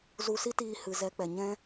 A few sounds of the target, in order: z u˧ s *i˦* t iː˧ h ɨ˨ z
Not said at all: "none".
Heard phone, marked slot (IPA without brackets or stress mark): i˦